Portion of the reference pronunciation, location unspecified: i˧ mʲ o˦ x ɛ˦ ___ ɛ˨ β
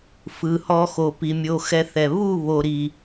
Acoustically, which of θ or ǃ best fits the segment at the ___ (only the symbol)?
θ